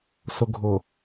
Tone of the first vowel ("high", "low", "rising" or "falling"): low